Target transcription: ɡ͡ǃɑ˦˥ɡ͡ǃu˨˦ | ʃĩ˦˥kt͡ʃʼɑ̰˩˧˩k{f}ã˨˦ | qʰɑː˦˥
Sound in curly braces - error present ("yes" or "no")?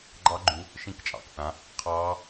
yes